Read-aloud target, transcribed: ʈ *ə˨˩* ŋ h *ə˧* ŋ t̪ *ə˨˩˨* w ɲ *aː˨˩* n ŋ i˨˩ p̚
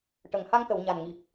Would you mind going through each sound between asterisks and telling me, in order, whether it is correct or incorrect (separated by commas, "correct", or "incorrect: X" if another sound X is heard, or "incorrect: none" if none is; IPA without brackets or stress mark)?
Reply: correct, incorrect: a˧, correct, incorrect: a˨˩